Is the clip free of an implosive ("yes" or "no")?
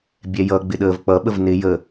no